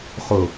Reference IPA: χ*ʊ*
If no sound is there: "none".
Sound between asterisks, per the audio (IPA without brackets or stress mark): ʊ